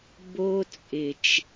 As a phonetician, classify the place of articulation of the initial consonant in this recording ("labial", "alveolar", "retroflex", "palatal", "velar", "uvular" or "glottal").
labial